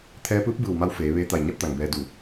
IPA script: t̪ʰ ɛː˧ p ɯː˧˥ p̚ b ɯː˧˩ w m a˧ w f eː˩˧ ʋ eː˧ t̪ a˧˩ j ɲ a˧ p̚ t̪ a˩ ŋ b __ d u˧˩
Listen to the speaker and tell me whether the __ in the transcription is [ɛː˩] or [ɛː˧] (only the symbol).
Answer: ɛː˧